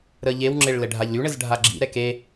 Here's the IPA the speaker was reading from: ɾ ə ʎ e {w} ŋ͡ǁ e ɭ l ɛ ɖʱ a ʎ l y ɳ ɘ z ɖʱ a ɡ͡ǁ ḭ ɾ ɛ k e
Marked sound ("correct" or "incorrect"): correct